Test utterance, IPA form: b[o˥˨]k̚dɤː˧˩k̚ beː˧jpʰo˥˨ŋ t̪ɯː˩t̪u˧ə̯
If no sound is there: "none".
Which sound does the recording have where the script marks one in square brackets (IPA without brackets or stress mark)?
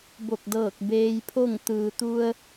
o˧˩